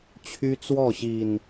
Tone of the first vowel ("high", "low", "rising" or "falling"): high